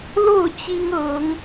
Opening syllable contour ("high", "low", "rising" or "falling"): falling